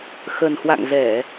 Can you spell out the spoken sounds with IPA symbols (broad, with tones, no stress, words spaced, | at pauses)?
xə˨˩nhwa̰˧˨ŋzɛ˧˩˨